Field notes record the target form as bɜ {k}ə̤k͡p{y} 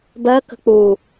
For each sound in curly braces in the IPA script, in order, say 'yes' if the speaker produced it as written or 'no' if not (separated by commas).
yes, no